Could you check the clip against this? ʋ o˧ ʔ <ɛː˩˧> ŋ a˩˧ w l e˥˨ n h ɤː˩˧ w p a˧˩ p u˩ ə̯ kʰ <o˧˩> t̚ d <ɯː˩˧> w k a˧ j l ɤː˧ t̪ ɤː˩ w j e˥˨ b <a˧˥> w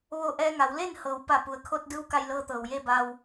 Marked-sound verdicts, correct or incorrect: incorrect: ɛː˧, incorrect: o˧, incorrect: ɯː˧˥, incorrect: a˧

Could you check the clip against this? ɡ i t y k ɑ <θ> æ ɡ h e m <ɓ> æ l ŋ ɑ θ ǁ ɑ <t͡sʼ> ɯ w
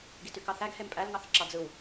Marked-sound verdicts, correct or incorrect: correct, incorrect: pʼ, incorrect: d͡z

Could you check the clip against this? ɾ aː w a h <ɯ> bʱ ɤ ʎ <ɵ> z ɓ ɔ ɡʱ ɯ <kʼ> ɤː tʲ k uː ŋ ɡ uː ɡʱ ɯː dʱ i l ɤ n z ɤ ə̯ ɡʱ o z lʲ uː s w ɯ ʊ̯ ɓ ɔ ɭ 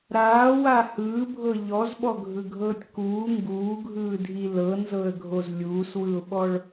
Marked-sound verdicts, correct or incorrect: incorrect: ɯː, incorrect: ɔ, incorrect: ɡʱ

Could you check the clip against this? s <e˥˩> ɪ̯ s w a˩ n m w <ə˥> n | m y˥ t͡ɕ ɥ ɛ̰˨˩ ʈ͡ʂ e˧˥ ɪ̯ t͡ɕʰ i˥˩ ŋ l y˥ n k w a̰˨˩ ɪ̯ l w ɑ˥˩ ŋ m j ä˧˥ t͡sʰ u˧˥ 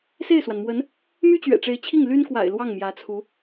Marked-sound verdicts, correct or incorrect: correct, incorrect: ə˧˥

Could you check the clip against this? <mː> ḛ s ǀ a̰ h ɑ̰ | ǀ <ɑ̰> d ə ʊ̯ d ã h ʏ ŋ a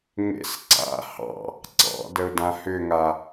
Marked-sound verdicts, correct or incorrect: incorrect: ŋ, correct

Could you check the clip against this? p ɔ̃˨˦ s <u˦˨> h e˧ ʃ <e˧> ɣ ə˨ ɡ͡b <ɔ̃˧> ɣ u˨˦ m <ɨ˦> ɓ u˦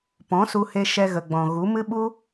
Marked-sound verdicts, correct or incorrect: incorrect: u˧, incorrect: ɛ˧, incorrect: ɔ̃˨, correct

